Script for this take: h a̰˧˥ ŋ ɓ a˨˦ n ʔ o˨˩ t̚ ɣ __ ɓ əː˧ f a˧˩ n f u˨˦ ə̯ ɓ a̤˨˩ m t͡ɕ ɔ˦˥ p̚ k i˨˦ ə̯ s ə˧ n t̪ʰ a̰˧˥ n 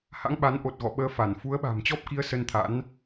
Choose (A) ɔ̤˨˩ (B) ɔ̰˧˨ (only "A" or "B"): B